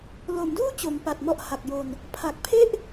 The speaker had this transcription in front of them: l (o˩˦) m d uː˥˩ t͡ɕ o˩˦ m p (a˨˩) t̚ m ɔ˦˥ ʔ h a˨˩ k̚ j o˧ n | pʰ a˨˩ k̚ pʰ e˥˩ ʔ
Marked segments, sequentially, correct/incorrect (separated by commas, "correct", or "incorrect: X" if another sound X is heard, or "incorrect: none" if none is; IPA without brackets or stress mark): correct, correct